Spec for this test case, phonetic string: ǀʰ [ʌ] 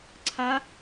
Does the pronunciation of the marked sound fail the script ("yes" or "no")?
yes